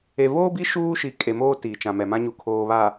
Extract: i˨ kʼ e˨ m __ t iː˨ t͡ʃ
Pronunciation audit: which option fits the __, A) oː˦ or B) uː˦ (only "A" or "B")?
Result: A